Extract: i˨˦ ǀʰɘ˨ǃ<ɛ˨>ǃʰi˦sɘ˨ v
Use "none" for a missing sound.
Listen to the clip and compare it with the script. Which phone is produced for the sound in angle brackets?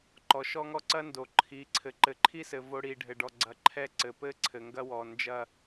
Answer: ɘ˨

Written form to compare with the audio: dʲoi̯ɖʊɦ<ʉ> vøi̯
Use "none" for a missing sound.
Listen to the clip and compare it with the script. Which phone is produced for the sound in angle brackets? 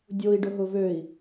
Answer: ʊ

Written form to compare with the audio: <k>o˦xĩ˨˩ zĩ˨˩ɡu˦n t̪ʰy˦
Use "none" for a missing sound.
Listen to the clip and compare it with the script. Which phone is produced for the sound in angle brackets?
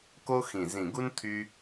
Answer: k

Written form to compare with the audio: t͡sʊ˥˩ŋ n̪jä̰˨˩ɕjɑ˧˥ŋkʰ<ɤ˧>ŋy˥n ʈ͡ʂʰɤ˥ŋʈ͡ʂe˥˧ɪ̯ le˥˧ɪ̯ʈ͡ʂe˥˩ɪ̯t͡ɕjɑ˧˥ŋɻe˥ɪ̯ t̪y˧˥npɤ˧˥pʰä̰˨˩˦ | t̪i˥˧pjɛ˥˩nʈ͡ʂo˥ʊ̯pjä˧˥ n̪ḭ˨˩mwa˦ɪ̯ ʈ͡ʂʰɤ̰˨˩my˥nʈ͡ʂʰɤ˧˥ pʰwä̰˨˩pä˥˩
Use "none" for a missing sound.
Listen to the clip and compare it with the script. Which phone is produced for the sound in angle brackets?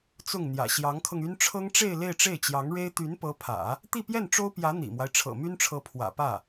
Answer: ɤ˧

